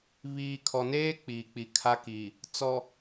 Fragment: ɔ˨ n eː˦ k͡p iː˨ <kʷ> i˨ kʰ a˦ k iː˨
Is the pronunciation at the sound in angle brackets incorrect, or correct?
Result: incorrect